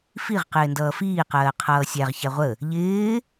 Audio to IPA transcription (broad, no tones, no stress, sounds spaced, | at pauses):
f i ʁ q ɪː n d ʌː f iː q ɜː qʰ ʌː sʲ æ ʁ ç æ ʁʷ ə | ʎ ɪː